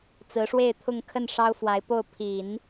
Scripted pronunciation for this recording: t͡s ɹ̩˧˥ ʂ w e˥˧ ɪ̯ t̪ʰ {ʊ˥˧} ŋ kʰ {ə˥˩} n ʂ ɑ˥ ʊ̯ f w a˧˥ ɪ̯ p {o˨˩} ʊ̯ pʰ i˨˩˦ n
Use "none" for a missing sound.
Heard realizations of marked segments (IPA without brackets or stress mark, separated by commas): ʊ˥˧, ə˥˩, o˥˩